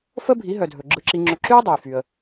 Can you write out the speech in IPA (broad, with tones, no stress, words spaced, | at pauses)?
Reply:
fə˥ bʱi˩˥ɦœ˩dʱɵ˩ ɡ͡ǁɯ˧ǁi˧ŋ͡ǁɵ˧ ǁy˥ə̯dˤœ˩jfy˩ə̯